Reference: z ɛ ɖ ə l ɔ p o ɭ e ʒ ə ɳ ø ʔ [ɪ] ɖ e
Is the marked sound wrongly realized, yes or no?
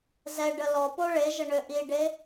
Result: yes